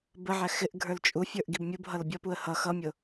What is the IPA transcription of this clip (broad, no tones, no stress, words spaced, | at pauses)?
bəʕæ xɪʔɡʱə˞l t͡ʃʼufʲə˞ʔ ɡibmʲubɦʌl bʲʌpuə̯ hʌ xʌmʲʊ